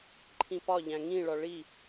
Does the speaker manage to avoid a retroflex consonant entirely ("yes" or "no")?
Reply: no